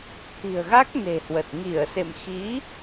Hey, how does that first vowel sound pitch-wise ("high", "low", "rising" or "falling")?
low